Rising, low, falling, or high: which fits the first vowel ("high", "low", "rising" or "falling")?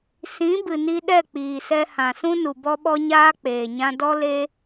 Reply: rising